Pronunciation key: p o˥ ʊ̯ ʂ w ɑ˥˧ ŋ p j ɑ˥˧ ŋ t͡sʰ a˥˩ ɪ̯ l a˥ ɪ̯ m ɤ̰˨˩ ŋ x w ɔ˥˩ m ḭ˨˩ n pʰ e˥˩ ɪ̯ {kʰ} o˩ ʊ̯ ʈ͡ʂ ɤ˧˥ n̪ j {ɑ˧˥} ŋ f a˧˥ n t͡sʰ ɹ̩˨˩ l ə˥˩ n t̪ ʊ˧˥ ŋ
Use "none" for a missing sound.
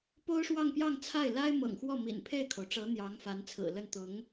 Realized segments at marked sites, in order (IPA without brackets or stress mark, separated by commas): kʰ, ɑ˧˥